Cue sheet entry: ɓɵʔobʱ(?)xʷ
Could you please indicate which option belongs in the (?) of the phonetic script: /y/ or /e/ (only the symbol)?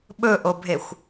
e